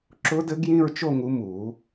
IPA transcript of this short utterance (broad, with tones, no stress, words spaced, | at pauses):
ǁʊ˦˥dɘ˦˥ɡ jĩ˥˧ɹt͡ʃo˥˧ŋu˨˦ mu˨˩˦